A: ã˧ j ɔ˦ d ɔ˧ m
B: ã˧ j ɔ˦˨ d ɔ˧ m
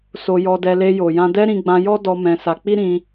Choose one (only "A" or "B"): A